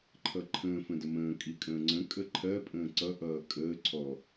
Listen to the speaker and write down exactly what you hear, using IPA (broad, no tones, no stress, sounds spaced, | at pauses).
ǃʰ ʌ ǃʰ ə̃ː f ə̃ d ə m ə̃ː kʼ i kʼ ə̃ː ŋ͡ǀ ə̃ kʼ ə ǃʰ ɜ pʼ ə̃ː ǀ ʌ ʔ ʌː kʼ əː ǀʰ ɔ